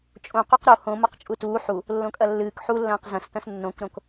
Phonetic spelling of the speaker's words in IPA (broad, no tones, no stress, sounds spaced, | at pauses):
t͡ʃʼ õ q o q ɾ o h õ m ɔ q t͡ʃʼ u t uː ħ u | lː õ kʼ ɐ lː ɨː k ħ u lː ɐ̃ː q z ɐ̃ s t ɐ̃ s nː õ k ɾ õ k